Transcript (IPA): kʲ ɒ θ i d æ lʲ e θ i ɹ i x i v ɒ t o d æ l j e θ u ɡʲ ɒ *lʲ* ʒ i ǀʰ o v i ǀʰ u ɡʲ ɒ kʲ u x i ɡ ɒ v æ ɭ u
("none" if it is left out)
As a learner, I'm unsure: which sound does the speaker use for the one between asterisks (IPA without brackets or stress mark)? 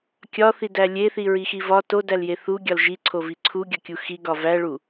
l